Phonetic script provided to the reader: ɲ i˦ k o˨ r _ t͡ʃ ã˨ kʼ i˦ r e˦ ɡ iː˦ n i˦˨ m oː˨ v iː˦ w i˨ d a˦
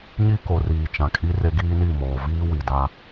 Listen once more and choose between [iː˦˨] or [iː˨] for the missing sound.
iː˨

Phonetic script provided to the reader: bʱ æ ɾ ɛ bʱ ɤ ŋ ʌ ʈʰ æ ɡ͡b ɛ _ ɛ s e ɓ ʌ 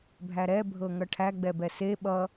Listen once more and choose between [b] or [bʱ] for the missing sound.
b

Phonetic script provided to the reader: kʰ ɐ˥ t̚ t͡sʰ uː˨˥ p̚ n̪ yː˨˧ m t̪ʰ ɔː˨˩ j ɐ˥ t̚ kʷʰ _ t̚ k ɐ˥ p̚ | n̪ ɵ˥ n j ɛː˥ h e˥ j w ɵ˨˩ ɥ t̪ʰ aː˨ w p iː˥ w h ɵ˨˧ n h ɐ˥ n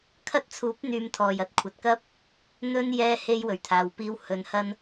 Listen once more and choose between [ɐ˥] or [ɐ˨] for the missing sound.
ɐ˨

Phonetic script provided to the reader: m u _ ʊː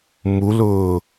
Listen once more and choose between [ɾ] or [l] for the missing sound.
l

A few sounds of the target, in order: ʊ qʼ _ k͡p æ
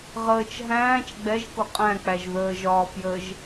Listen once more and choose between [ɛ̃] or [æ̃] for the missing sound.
æ̃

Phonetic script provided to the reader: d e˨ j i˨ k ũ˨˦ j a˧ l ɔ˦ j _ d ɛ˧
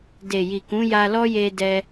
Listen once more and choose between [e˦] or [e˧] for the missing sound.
e˧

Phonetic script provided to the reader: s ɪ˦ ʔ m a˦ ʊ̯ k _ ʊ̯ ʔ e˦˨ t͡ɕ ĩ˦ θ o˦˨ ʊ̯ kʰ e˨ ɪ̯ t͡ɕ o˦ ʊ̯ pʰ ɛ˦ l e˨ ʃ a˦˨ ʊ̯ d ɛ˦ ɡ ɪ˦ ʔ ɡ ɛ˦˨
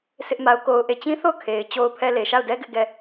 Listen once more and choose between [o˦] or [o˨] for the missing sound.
o˦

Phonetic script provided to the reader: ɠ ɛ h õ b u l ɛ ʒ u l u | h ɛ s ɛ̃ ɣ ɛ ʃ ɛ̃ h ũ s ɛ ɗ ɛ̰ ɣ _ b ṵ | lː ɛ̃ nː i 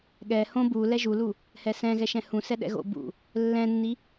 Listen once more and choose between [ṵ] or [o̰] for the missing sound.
o̰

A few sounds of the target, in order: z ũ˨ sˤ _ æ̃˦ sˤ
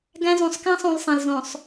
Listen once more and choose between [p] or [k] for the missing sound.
k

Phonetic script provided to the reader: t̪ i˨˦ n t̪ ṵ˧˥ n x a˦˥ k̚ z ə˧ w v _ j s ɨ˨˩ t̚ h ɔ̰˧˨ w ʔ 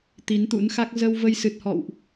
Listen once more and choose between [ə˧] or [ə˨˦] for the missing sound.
ə˧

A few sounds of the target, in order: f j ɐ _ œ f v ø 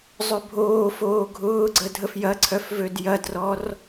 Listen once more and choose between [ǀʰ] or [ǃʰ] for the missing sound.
ǀʰ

